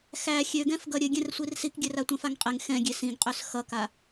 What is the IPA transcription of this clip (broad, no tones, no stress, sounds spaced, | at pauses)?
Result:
x æ xʲ ø ɡ ɛ̃ f ɡ ʌ ɾʲ ɘ ɡʲ ɛ̃ r sʷ i r s i k ɡʲ ɘ r a tʷ ɛ̃ f a ŋ qʼ e ŋ x ɛ̃ ɡʲ e s ĩ ɡ qʼ ø s x ʌ k a